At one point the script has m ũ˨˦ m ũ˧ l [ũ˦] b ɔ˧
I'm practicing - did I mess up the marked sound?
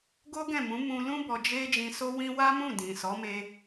no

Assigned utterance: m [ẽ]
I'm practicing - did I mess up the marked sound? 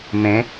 no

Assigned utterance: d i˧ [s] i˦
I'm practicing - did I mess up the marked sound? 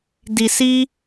no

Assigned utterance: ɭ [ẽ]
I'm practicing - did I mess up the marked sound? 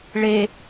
yes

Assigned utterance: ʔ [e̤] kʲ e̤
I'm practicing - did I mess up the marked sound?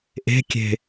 no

